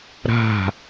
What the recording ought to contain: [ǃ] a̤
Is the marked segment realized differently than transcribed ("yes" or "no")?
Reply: yes